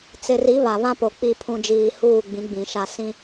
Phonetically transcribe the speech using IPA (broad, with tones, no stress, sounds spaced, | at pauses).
t͡s ɪ˨ r i˨˦ β a˨ β ã˦ p o˨ k͡p i˨ pʰ ũ˨ d͡ʒ iː˨ h uː˦˨ ɡ͡b ĩ˨˦ ɡ͡b ĩ˨ ʃ a˦˨ s ĩ˦